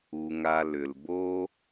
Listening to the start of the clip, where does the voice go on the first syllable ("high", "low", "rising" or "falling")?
low